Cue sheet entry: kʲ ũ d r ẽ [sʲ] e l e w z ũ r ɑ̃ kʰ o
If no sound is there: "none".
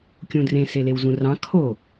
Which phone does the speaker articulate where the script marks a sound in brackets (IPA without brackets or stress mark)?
s